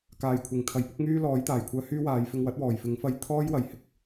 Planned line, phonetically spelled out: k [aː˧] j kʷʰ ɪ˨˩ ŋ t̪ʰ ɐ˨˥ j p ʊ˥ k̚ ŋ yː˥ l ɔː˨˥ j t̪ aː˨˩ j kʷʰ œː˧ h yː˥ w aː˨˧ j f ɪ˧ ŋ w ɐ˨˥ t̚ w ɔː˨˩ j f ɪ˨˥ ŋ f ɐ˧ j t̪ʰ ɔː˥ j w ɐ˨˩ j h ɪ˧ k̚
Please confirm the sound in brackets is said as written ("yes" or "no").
no